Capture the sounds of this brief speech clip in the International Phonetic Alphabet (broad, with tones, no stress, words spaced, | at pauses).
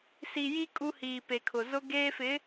si˨ji˦ kʼu˦hiː˨pe˨kʰʊ˨ zʊ˦ɡeː˦fɪ˨˦